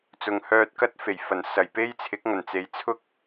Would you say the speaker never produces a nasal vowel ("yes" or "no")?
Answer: yes